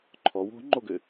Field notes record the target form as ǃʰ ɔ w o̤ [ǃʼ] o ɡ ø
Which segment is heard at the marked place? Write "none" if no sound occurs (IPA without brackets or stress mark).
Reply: ŋ͡ǃ